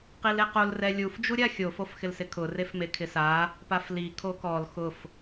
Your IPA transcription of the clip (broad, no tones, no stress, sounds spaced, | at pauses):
q i l e q o l r ɛ lʲ u f d͡ʒ u ɾʲ a xʲ o f o f x ɪ l s ɪ kʰ ʊ r e f m e kʰ ɪ s a | p a f l i kʰ o k ɔ l x ʊ f